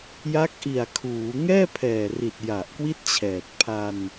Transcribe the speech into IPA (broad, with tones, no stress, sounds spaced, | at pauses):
j a˦˥ k̚ ʔ i˨˩ a̯ kʰ uː˩˦ ŋ ɛː˥˩ pʰ ɛː˨˩ r i˨˩ t̚ j a˨˩ ʔ k w i˥˩ t̚ t͡ɕʰ ɛː˨˩ t̚ pʰ a˧ n